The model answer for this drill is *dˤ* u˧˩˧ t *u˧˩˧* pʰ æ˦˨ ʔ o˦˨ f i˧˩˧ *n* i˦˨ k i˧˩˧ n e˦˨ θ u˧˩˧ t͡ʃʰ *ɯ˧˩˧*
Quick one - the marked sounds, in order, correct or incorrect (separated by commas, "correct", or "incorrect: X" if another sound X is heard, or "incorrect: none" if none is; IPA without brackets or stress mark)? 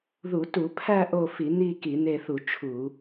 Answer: incorrect: ð, correct, correct, incorrect: u˧˩˧